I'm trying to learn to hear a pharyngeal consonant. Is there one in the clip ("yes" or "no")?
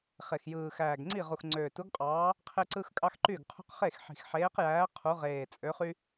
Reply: yes